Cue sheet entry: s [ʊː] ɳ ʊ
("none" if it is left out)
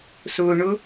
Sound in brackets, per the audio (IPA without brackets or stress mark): ʊː